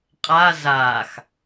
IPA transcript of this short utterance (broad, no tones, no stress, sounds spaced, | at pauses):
qʼ a z aː x